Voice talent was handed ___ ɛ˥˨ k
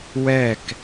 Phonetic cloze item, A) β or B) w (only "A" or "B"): B